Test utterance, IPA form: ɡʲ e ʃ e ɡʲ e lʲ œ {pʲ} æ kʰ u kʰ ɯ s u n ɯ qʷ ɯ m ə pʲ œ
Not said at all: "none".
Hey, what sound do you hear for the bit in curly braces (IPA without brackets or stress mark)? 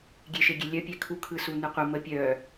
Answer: pʲ